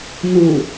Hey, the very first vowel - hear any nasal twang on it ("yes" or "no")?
no